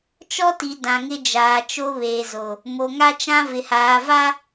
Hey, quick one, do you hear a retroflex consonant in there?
no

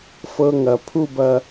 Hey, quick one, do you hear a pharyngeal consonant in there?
no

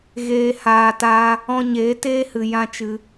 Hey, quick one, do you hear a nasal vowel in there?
yes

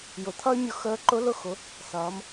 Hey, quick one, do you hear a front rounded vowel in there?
yes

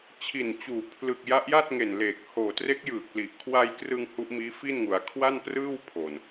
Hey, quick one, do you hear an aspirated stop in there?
yes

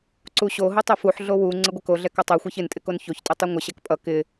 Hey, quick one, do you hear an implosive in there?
no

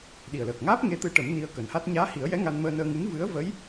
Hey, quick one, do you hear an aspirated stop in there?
no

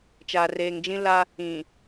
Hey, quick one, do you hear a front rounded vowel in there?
no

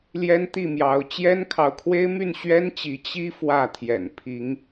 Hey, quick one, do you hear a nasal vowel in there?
no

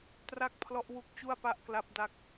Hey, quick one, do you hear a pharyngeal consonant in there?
no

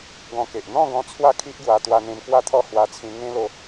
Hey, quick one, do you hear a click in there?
no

